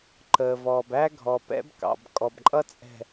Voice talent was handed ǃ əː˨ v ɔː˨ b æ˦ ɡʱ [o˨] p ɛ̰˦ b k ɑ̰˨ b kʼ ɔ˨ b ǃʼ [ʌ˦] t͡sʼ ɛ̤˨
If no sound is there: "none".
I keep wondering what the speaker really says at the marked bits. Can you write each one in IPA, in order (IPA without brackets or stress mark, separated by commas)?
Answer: ɔ˨, ʌ˦